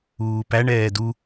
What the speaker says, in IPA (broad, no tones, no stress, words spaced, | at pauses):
uːpæɳɛː du